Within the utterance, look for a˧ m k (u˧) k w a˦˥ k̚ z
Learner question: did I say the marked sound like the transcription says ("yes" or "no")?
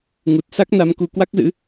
yes